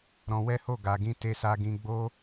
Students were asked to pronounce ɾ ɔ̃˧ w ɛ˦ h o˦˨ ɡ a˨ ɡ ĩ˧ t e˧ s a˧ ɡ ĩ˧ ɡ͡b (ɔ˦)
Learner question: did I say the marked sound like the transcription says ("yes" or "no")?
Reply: no